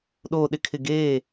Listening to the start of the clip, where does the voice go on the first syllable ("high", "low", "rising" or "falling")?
low